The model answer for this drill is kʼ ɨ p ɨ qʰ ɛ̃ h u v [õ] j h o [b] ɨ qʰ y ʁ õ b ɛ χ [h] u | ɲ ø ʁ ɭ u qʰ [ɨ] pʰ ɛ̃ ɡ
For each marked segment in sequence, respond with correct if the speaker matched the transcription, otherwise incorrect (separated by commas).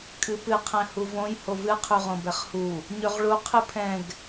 correct, incorrect, correct, correct